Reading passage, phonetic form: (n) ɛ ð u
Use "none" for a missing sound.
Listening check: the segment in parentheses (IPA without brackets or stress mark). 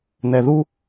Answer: n